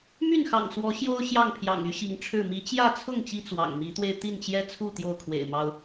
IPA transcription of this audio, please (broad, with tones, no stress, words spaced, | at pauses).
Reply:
my˥˨nxɑ̰˨˩ŋswɔ˨˦ ɕjo˦ʊ̯ ɕjɑ˥˨ŋpʰjɑ̰˨˩ŋy˦ ɕi˨˦ŋʈ͡ʂʰɻ̩˥˨ mi˨˦t͡ɕjä˥˨t͡sʰʊ˥˨ŋ t͡ɕi˦t͡swɑ̰˨˩ŋmi˨˦t̪we˧ɪ̯ t̪i˥˨nt͡ɕjɛ˦t͡sʰu˥˨ t̪jo˥˨ʊ̯kʰwḛ˨˩ɪ̯mɑ˦ʊ̯